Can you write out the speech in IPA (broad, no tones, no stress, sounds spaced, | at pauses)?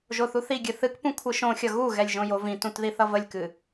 ʒ o θ u θ i ɡʲ ɨ θ ɨ k p ũ kʷʰ ɨ ʃ õ xʲ ʌ ɣ u ɣ ɛ lʲ ʒ õ j o v ĩ t ũ t ð i θ ʌ v ə lʲ k ɨ